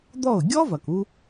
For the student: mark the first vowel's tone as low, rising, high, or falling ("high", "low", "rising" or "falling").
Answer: falling